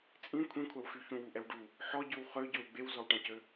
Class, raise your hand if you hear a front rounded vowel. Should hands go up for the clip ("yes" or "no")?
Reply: yes